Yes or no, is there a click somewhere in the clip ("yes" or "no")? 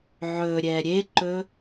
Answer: yes